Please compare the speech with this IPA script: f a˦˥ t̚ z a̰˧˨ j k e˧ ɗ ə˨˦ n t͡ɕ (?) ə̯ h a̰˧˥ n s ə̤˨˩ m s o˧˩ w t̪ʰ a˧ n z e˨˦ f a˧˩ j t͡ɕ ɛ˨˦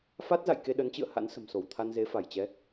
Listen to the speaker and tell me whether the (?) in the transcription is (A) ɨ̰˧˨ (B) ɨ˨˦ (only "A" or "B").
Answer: A